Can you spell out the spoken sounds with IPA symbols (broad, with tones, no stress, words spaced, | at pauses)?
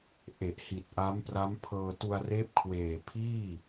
ʔe˨˩ʔhi˨˩t̚ ʔa˦˥mpra˦˥mpʰɤː˧ tu˧a̯reː˦˥p̚kʰweː˨˩ pʰiː˥˩